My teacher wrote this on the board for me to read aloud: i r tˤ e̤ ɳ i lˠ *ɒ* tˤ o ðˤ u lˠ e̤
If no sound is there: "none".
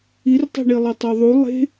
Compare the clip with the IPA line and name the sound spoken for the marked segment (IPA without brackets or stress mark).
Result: ʌ